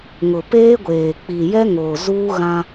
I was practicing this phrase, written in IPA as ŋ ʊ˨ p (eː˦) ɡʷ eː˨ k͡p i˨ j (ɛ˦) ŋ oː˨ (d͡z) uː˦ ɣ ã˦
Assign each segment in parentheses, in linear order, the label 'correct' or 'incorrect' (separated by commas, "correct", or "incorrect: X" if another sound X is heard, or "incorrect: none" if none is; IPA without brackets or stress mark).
correct, correct, incorrect: z